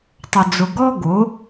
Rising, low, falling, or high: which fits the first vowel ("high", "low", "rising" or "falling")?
low